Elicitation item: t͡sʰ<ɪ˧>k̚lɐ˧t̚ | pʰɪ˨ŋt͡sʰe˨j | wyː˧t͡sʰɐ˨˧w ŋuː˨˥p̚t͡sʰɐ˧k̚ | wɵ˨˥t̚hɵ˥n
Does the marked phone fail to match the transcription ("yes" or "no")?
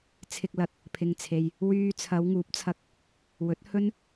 no